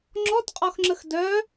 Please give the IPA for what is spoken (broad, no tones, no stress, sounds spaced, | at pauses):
ŋ͡ǁ ɔ t qʼ ɔ x ŋ͡ǁ ə x d œ